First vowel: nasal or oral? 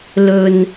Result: oral